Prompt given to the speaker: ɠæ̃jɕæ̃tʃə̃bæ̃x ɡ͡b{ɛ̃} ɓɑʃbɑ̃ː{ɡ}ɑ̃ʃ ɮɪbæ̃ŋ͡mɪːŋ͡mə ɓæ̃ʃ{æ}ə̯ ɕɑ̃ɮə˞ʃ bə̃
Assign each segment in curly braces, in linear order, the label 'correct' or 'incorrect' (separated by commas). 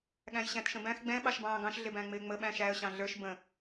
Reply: correct, correct, correct